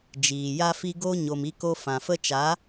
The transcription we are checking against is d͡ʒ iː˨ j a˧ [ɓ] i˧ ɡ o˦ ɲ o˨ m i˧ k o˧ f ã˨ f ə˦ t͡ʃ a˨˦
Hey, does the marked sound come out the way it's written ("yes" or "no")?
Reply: no